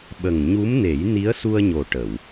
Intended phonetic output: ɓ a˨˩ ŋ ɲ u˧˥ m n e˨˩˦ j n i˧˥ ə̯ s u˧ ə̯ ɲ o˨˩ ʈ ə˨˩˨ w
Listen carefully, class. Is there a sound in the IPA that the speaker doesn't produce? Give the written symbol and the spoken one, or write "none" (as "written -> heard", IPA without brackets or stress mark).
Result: a˨˩ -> ə˨˩